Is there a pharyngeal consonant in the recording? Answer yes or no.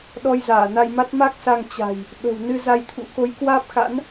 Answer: no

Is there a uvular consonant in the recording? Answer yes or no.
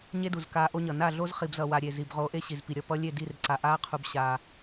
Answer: yes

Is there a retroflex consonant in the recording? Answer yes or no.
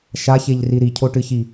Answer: yes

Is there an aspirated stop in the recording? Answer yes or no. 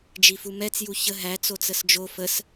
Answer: no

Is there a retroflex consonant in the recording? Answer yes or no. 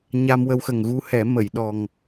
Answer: no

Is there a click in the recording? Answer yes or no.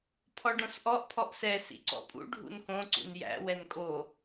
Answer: yes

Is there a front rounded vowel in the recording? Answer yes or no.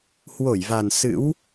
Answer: no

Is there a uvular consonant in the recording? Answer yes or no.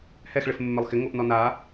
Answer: no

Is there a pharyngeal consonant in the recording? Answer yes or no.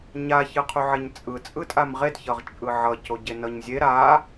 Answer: yes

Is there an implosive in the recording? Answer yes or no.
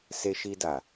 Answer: no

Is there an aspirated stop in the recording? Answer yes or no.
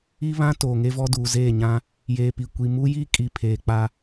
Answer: yes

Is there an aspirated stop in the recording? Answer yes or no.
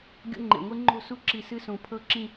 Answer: yes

